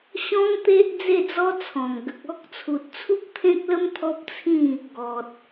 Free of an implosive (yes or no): yes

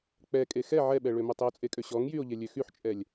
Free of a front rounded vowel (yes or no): no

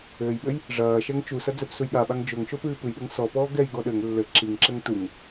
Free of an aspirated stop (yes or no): yes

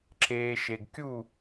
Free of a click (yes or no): no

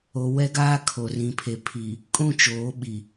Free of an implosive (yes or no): no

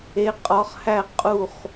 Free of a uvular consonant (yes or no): no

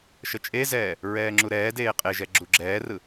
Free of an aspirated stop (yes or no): yes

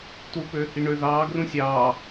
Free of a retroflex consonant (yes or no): no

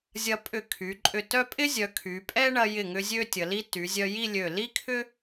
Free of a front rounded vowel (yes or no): no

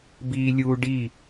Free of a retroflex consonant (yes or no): no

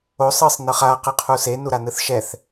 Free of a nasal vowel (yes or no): yes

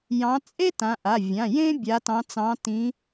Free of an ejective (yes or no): no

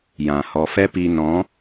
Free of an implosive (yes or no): yes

